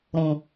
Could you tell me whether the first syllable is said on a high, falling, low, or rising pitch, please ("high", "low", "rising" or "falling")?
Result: low